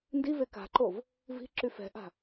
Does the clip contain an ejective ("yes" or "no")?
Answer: no